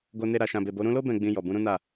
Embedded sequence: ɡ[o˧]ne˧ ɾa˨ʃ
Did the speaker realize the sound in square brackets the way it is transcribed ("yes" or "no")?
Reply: yes